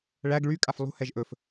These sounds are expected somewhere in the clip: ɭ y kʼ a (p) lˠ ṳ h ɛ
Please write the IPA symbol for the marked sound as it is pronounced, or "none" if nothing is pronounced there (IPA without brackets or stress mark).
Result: f